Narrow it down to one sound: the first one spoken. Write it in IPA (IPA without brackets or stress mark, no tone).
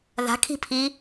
ð